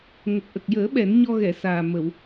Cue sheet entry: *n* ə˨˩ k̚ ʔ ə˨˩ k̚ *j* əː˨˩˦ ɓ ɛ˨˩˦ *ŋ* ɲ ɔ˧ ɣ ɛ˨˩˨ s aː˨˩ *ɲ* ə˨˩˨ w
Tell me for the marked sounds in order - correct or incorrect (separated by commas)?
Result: incorrect, correct, incorrect, incorrect